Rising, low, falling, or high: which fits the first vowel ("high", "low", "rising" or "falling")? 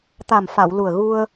low